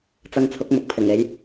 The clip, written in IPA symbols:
t͡s ɐ˧ ŋ t͡sʰ ʊ˨˥ k̚ m ʊ˨ k̚ pʰ ɪ˨˩ ŋ e˨˥ j

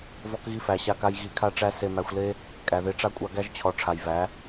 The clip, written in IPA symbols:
v ɔ˧ k ɣ i˧ f æ˨ ɕ a˧ k a˧ j ɣ i˧ kʰ a˦ ʈ͡ʂ æ˦ s e˧ m æ˧ xʷ l e˦ | kʼ æ˨ ð e˧ ʈ͡ʂ a˦ kʷʼ a˧ ɡ æ˦ ʒ t͡ɕʰ ɔ˨ ʈ͡ʂʰ a˨ j v æ˨˦

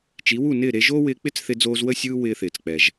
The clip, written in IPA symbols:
t͡ʃ i˩˥ w u˥˩ n ɪː˥˩ ɾ e˧ ʒ oː˥ w ɪː˧ k͡p ɪ˥ t͡s θ ɪ˧ d͡z oː˧ z w ə˥˩ sʲ ɯː˥ w ɪː˧ θ ɪː˩ t͡s k͡p ɛ˩ ʒ

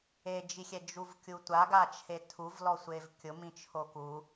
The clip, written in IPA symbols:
e d͡ʒ i xʲ ɛ d͡ʒ u v kʲ u tʷ a ɡ a t͡ʃʰ e tʰ u v l ɔ sʷ e v kʲ ʊ m ĩ t͡ʃʰ o k u

